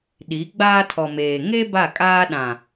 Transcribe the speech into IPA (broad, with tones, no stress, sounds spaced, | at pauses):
ɗ i˨˦ ɡ͡b aː˦ tʰ ɔ˨ m eː˨ ŋ e˦ b a˦˨ kʼ aː˦ ɗ ã˨